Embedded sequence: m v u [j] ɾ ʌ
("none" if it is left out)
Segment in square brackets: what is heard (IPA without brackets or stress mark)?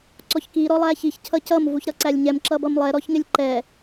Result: ç